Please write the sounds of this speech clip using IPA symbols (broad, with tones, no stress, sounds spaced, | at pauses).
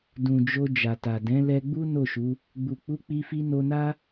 d ũ˨ d͡ʒ o˧ d͡ʒ a˨ t a˨ d ɛ̃˨˦ l ɛ˧ ɡ͡b u˦ n o˦˨ ʃ u˨˦ | ɡ͡b u˨ k͡p u˨˦ k͡p i˧ f i˧ n o˧ n a˦